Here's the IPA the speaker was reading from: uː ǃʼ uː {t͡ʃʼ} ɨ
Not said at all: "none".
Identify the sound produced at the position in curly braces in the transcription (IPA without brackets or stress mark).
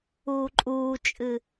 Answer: t͡ʃʼ